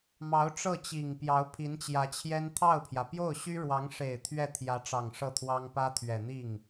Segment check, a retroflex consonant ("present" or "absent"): present